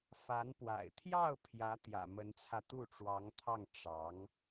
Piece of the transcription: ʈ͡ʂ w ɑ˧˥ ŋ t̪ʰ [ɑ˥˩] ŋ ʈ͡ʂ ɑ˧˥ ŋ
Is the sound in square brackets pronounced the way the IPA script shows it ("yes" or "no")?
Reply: yes